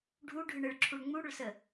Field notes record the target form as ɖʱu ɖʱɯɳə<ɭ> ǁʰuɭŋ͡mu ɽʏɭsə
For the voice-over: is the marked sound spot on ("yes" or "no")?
yes